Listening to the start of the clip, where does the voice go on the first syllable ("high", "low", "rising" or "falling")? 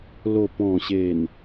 low